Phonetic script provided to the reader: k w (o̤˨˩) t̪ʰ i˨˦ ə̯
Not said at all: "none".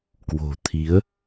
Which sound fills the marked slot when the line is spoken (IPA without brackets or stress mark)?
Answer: o̤˨˩